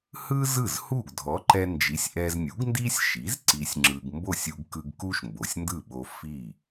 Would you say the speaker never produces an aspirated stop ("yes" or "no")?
yes